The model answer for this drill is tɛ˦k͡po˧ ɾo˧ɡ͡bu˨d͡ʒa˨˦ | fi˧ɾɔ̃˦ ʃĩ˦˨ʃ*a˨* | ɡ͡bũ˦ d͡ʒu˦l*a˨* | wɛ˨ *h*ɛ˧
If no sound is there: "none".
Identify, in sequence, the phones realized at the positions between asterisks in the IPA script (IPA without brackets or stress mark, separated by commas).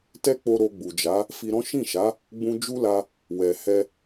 a˨˦, a˧, h